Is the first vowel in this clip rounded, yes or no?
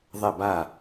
no